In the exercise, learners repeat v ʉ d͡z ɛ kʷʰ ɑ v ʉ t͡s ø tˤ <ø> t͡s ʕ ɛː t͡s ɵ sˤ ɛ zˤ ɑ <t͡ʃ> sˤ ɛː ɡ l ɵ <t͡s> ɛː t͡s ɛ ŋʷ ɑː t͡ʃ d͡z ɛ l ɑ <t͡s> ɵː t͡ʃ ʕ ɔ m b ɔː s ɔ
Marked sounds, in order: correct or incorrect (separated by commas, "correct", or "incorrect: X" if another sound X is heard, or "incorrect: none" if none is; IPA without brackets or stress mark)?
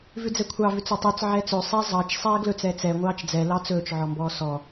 correct, correct, correct, correct